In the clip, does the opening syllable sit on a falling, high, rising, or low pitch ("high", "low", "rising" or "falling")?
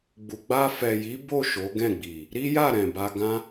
low